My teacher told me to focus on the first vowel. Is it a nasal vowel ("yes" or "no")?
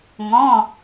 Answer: yes